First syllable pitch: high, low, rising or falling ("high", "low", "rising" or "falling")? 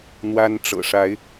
high